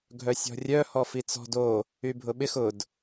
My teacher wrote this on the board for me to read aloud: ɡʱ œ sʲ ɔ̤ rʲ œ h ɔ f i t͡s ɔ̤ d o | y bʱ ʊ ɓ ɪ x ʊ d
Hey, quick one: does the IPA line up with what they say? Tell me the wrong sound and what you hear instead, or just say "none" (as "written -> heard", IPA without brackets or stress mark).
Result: none